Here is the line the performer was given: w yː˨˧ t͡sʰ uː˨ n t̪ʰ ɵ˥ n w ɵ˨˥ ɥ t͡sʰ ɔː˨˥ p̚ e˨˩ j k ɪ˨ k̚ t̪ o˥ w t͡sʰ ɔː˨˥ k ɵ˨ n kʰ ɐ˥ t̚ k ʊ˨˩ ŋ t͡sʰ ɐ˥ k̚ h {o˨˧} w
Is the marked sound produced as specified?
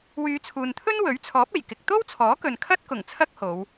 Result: yes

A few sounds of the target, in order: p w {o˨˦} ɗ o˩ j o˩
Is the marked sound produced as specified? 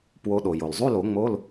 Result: yes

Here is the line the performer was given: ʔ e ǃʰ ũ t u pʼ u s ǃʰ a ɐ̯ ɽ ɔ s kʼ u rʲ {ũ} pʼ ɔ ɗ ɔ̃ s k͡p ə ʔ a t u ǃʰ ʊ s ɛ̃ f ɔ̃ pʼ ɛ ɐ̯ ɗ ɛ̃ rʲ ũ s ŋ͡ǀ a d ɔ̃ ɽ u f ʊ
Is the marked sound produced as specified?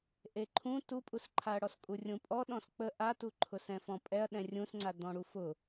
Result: yes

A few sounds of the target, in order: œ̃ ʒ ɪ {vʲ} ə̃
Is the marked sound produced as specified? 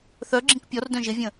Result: yes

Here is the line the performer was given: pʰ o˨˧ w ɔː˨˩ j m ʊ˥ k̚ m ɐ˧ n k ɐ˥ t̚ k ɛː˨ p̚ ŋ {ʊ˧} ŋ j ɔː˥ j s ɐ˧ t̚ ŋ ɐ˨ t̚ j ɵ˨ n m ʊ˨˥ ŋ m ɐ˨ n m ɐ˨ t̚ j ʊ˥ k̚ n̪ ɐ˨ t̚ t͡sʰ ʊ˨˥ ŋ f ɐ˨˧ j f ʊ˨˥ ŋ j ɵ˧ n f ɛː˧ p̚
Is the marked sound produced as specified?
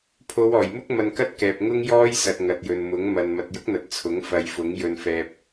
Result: no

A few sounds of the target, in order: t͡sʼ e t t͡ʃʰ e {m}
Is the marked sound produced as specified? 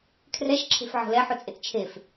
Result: no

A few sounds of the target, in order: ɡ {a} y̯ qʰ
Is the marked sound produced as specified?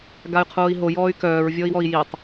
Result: yes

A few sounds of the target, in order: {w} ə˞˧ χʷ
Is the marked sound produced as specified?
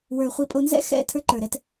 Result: yes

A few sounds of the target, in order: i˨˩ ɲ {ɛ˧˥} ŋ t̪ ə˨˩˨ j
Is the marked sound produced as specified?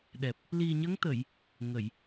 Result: no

